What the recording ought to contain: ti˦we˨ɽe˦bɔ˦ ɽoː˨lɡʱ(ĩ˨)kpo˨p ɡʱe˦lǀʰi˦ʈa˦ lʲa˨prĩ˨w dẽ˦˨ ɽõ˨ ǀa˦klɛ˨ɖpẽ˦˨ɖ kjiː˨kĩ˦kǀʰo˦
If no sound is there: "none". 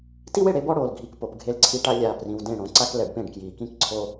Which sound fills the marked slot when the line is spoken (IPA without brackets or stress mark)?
i˨